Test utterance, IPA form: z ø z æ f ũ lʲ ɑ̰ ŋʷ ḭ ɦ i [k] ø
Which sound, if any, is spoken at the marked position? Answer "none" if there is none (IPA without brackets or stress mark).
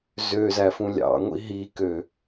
k